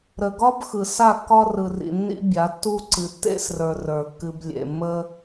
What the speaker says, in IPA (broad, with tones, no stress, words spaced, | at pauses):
ɾə˨ ɡɒ˦b xɯ˨ sa˦˨kːɒ˦rɯ˨rḭ˨ nːḭ˦bʲa˨˦tːu˦ ǀɨ˨tːḛ˦srə˞˨ rə˞˨kːɨ˧b lʲḛ˨mːə˦